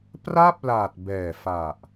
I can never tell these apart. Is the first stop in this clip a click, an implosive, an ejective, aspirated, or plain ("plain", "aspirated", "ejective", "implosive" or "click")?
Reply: plain